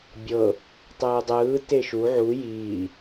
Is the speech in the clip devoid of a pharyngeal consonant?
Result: no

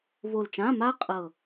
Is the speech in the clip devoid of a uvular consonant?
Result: no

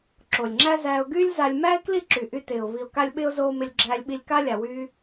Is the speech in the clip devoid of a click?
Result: no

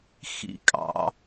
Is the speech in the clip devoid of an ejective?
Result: no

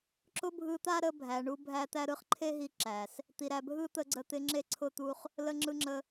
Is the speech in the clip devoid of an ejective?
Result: yes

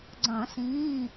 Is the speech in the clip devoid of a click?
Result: no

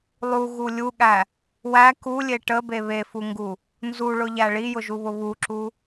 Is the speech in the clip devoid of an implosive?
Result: no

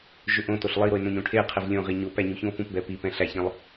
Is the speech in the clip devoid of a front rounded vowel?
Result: no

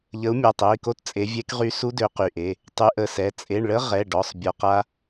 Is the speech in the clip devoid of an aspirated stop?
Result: yes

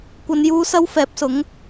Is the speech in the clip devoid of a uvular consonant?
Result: yes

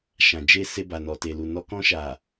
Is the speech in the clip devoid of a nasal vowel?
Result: no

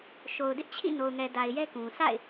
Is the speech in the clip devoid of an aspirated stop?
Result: no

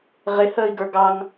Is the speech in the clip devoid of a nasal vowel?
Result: yes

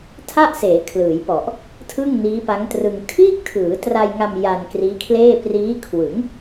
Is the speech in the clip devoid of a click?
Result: yes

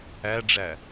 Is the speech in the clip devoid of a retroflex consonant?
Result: no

